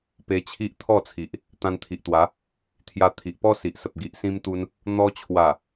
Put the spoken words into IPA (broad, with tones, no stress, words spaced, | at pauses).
pe˧t͡ɕʰi˦ʔt̪ʰɔ˥˧t͡sʰi˨ʔ | t̪ã˧nt̪ʰi˨ʔt̪wa˨˦ | t̪ʰja˧t̪ʰi˨ʔpɔ˦si˨ʔ sə˨p̚ɡi˨ʔ sĩ˦mt̪u˦n | n̪ɔ˧t͡ɕʰwa˨˩